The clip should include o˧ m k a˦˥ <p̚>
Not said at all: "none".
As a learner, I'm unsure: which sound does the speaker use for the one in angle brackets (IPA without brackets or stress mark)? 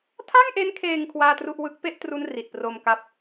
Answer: p̚